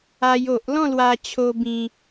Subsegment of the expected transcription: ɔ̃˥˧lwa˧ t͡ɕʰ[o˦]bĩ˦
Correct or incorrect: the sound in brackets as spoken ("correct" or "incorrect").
correct